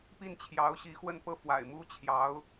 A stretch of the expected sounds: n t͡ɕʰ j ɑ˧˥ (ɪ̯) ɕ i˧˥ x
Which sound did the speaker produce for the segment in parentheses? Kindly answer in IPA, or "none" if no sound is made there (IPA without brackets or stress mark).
ʊ̯